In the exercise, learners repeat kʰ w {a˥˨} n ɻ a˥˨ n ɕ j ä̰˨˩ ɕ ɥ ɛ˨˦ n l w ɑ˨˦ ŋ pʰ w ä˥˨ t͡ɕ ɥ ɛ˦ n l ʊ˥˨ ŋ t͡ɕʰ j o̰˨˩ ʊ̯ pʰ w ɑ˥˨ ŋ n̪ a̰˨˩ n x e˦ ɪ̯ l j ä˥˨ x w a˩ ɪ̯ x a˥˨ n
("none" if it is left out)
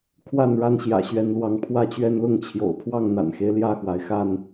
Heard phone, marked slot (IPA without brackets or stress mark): a˥˨